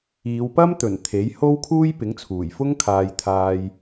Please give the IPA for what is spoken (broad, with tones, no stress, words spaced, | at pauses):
iː˨˧wpɐ˥mt̪ɵ˨˩n t̪ʰe˨˥jho˥w kʰuː˥jpɪ˨˥ŋt͡sʰuː˨˩jfʊ˥ŋ kʰaː˧jt̪ʰaː˧j